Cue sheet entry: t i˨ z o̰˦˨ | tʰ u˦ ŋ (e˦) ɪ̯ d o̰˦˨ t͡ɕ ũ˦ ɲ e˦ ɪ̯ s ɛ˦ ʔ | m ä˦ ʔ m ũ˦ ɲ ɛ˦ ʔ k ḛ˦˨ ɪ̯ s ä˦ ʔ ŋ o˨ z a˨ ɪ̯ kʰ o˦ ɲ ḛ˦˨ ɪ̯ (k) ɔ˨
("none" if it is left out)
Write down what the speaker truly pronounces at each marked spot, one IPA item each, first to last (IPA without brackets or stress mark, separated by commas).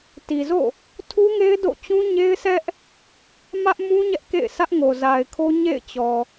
e˦, t͡ɕ